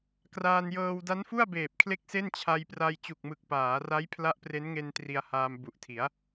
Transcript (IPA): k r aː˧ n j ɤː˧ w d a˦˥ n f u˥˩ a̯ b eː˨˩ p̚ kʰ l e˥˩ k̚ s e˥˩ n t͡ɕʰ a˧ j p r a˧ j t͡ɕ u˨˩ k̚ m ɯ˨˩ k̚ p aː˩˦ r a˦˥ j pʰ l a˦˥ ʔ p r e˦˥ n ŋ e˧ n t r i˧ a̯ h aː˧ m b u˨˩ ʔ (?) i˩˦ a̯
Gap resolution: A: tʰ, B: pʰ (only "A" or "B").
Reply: A